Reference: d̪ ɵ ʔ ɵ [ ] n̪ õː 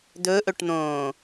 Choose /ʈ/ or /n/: ʈ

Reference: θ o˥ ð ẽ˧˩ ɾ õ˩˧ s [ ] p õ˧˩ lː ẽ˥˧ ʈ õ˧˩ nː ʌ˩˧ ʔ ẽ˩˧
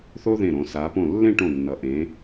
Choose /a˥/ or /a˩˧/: a˩˧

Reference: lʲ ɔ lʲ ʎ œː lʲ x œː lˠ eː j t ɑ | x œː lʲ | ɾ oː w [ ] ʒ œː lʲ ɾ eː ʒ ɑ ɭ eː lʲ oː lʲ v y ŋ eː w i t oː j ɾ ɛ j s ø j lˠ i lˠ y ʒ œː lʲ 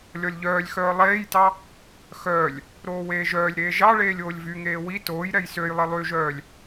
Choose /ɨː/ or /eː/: eː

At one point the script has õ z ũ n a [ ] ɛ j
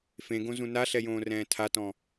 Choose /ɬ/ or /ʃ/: ɬ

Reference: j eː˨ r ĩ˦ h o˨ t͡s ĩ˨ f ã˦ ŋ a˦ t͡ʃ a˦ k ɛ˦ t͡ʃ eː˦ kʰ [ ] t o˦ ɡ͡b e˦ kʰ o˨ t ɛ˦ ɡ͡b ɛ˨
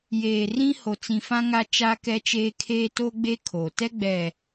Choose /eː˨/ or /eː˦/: eː˦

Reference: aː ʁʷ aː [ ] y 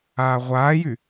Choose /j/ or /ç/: j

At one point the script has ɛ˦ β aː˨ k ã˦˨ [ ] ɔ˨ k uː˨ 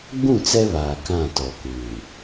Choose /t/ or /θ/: t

